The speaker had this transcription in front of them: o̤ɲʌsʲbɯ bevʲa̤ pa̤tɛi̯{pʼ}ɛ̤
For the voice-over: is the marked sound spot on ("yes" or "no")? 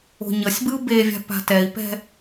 no